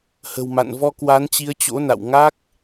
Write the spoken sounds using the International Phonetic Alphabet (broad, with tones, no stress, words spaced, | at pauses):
hə̤˨˩wma̰˧˨nvɔ˧ kwa˨˦nt͡ɕi˨˦ə̯t͡ɕo̰˧˥na̰˧˨w ŋa˦˥k̚